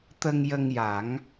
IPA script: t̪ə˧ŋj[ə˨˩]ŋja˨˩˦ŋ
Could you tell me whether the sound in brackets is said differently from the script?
yes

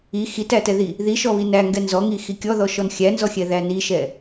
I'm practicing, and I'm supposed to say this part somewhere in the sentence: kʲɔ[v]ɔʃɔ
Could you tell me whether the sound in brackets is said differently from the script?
yes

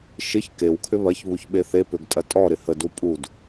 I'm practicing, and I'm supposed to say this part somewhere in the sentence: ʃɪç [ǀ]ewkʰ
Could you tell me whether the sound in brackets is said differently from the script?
yes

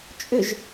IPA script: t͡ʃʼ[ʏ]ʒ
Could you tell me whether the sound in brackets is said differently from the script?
no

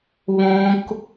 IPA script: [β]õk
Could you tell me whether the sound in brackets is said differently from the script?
no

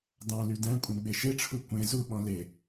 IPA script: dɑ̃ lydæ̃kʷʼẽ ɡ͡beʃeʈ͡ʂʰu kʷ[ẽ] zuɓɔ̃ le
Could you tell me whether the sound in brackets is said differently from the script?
no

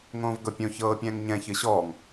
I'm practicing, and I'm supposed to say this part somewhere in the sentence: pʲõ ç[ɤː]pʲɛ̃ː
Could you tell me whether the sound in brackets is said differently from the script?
no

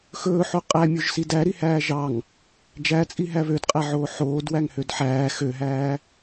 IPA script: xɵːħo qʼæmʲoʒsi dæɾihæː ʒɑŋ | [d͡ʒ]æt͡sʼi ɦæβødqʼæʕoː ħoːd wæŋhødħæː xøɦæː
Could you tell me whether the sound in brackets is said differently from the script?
no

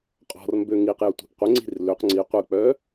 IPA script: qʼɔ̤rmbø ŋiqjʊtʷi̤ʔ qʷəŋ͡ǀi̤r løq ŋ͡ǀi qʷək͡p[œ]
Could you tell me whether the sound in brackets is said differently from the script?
no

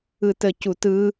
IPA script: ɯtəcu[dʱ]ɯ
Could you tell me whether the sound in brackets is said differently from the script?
yes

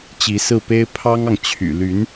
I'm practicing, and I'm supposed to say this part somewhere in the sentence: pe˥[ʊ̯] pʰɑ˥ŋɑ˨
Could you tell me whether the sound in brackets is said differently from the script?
yes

